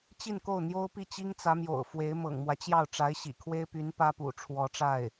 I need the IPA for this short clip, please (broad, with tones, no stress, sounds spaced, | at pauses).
t͡ɕ i˥˧ n k o˥˩ ʊ̯ n̪ j o˥ ʊ̯ p i˥˩ t͡ɕ i˥ ŋ t͡s ä˧˥ m j o̰˨˩ ʊ̯ f w e˧˥ ɪ̯ m ɤ̰˨˩ ŋ m w ä˦ t͡ɕ j ɑ˥˩ ʊ̯ ʈ͡ʂ a˧˥ ɪ̯ ɕ ḭ˨˩ kʰ w e˥ ɪ̯ p y˧˥ n p ä˥ p ṵ˨˩ ʈ͡ʂʰ w ɔ˧˥ ʈ͡ʂ a˥˩ ɪ̯